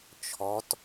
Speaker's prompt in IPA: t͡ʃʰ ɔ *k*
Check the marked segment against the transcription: incorrect: t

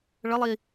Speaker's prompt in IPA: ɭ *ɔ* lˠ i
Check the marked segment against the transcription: incorrect: ə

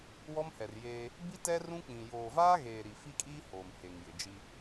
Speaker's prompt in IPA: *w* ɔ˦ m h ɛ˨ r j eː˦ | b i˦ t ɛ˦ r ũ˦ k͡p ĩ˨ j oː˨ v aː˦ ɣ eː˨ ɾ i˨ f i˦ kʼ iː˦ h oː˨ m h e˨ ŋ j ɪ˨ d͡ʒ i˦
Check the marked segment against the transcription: correct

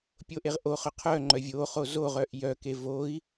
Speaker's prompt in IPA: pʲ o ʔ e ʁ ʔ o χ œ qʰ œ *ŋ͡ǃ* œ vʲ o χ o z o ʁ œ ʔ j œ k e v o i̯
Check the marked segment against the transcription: correct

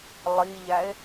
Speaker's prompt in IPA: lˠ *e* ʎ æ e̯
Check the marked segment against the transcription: incorrect: i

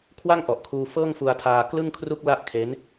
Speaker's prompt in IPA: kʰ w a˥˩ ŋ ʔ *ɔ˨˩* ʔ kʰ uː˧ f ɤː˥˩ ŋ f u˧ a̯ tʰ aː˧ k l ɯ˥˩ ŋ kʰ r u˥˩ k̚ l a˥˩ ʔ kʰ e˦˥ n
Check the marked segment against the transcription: correct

